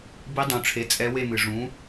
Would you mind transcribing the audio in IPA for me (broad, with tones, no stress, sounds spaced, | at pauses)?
b i˧˥ dˤ ũ˨˩˦ ʈ͡ʂʰ e˩˥ t͡sʼ ɛ˧˥ w e˥˧ m ɨ˩ ʐ ũ˩˥